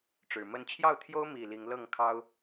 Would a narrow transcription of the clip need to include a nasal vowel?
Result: no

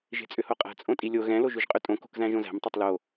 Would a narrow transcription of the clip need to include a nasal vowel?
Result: yes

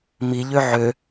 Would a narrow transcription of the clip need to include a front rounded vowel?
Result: yes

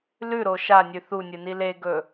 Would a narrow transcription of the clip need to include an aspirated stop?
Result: no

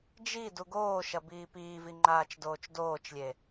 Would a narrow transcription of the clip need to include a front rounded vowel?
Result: no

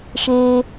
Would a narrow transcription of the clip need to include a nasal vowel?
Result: no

